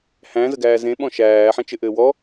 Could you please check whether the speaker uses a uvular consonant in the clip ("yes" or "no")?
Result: no